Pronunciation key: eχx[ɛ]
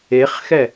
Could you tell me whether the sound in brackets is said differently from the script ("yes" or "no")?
no